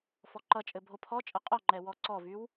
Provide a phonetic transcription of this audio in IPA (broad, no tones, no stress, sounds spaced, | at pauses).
f ɔ ǃ ʌ t͡ʃʼ ɘ bʱ o pʰ ɔ t͡ʃʼ ʌ qʼ ɔ ŋ͡ǃ ɛ w ɔ ǀ ɔ v y w